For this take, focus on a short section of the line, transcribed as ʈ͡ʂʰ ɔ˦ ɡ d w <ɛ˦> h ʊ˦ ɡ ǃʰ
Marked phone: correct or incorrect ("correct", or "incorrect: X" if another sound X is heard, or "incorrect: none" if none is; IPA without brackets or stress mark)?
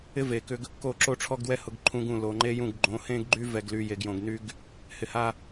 correct